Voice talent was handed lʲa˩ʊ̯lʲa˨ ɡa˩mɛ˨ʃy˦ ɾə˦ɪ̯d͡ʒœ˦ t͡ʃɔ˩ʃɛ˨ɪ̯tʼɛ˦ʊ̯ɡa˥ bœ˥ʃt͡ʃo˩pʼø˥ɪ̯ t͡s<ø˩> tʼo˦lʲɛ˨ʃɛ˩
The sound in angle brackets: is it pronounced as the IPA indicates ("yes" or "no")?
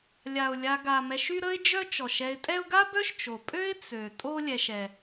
yes